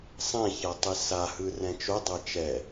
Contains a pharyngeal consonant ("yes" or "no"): no